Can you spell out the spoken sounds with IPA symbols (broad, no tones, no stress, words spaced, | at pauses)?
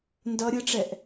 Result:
ndʌ ɾʲɯʈ͡ʂɛʔ